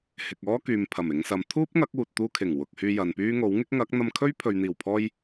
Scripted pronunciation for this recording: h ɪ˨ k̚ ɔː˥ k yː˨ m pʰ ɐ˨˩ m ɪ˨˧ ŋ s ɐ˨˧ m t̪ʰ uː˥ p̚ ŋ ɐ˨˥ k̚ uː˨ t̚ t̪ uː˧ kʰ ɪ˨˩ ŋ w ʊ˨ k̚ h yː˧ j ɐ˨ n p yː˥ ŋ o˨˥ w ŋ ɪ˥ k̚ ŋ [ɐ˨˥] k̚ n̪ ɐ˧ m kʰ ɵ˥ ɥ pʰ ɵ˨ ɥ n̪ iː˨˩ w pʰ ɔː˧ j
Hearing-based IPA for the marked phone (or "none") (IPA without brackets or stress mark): ɐ˨˥